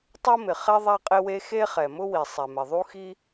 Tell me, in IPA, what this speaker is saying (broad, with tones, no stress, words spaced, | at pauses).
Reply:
tˤo˥mɪ˩χɛ˥ ðˤa˥qʼɪ˥we˥ xe˥χɛ˩mʊ˥wi˩ sˤɛ˩mɪ˩ðˤu˥xi˥